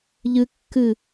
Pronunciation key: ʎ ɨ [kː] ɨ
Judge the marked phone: correct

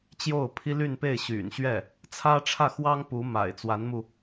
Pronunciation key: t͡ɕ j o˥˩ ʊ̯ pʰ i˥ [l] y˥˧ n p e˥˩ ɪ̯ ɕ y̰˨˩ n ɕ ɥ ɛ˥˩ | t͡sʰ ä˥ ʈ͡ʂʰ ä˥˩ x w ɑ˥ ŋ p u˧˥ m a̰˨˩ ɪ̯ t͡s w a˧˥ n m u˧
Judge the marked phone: correct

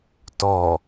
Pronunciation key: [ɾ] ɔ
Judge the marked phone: incorrect: t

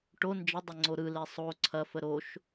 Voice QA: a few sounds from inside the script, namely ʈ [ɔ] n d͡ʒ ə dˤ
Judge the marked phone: incorrect: o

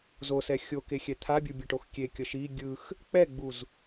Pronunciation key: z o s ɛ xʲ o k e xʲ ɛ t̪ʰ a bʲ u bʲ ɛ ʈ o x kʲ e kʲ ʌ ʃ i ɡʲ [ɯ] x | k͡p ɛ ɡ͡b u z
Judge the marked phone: correct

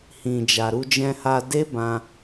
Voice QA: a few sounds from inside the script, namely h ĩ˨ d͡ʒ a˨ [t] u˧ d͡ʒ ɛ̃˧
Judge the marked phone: incorrect: ɾ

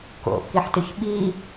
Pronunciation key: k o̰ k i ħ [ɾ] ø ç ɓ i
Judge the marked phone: incorrect: t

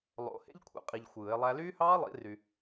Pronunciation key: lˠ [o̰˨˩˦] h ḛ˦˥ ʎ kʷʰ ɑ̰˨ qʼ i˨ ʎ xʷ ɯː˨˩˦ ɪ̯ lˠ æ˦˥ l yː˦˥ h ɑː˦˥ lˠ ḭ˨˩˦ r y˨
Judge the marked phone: correct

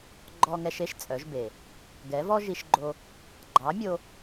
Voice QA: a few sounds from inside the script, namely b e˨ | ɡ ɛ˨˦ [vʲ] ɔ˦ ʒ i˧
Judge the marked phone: incorrect: v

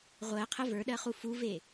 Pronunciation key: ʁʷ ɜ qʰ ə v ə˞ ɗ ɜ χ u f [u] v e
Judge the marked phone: correct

